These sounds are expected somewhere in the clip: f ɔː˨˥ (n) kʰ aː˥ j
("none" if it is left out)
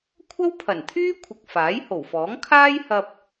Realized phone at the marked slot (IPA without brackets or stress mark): ŋ